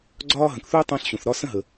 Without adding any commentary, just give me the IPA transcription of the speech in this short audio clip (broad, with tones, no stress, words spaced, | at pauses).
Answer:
ɡ͡ǀɒː˥ɦə̃˩kθu˥j tˤə̃ː˥ɬɕũ˩θɾɒ˥ sə̃˥ɦə˩